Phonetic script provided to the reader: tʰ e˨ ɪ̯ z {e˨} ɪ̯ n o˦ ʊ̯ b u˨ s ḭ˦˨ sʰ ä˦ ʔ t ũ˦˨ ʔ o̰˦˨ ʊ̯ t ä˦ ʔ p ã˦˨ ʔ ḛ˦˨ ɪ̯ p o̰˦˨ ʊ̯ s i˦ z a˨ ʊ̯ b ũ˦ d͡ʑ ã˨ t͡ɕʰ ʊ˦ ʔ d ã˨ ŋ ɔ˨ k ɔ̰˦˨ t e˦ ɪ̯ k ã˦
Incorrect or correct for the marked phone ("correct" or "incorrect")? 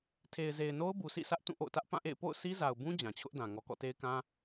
correct